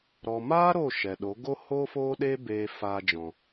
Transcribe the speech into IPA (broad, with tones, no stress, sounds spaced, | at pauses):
ɾ ɔ˨ m aː˦ ɾ o˦˨ ʃ ɛ˨ ɗ o˨˦ ɡ o˦ h o˦ f oː˦ ɗ eː˦ b eː˧ f aː˧ d͡ʒ ɔ̃˨